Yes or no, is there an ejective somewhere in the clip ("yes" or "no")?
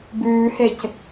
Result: no